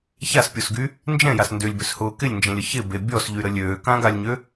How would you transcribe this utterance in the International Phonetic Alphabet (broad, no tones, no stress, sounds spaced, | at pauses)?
ç a s pʲ o s ɡ y | n d͡ʒ ɛ̃ j a s n d ʏ lʲ b ʏ s h ʊː k ɪ lʲ n d͡ʒ ɛ̃ lʲ ə ç ɪ b e bʲ ɔ s ʎ y ɾ ə lʲ øː k ã ɡ a lʲ ɲ ø